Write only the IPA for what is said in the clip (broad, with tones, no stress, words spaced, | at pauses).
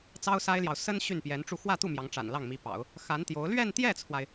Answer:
t͡sɑ˥ʊ̯sa˥ɪ̯ljɑ˨ʊ̯ sə˥n ɕy˥˩npjɛ˧˥nʈ͡ʂu˥˧ xwä˥˧t̪u˥˩ mjɑ˧˥ŋʈ͡ʂa̰˨˩nlɑ˥˩ŋmi˧˥ pɑ̰˨˩˦ʊ̯ | xa˧˥nt̪jo˧˥ʊ̯ lɥɛ˥˧nt̪jɛ˥˩t͡sʰwa˩ɪ̯